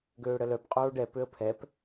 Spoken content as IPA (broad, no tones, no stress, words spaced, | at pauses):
ɡøːɽəlœp qʼoːɖɛ pøə̯pʰɛp